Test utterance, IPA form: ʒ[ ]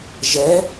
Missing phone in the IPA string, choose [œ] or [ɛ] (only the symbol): ɛ